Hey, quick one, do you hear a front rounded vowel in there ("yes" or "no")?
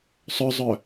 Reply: yes